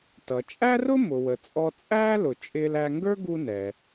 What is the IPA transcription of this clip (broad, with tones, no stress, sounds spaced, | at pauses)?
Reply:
t ʌ˩ t͡ʃʼ æ˥ r ʊ˥ m ʊ˩ w ə˩ t͡sʼ ɔ˦ t͡sʼ æː˥ l ʊ˨ t͡ʃʼ ɪː˦ l æ˦ ŋ ɡ ə˞˥ ɡ u˦ n ɛ˩